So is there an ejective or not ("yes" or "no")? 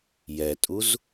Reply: yes